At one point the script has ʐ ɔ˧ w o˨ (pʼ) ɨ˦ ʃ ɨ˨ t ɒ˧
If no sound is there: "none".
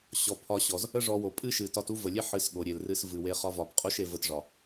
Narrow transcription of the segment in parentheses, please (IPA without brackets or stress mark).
pʼ